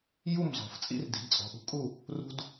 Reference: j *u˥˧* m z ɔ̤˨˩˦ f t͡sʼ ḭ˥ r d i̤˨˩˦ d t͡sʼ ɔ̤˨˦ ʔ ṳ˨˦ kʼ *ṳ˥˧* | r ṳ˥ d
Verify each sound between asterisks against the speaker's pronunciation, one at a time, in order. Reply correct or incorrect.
correct, incorrect

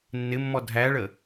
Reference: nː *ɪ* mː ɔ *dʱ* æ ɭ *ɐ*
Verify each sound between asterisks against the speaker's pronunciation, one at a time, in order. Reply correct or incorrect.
correct, correct, incorrect

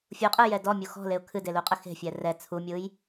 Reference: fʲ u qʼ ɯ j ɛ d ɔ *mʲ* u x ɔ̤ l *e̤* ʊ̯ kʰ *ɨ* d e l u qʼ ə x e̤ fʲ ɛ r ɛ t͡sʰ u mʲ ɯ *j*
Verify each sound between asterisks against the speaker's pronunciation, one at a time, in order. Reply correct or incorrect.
correct, incorrect, correct, correct

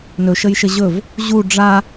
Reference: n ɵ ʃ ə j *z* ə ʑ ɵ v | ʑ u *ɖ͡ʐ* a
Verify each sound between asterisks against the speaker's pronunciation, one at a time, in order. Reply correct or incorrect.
incorrect, correct

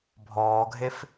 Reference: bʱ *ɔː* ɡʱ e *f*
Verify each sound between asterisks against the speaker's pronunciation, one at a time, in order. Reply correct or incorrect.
correct, correct

